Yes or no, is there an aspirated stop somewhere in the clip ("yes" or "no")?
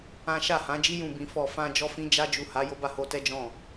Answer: no